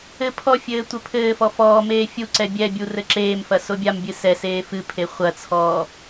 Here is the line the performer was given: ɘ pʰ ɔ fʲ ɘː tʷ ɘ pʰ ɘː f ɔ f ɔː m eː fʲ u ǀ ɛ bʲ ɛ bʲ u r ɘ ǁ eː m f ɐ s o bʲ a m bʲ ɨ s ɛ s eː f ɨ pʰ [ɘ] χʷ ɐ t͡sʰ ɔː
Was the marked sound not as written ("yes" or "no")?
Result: yes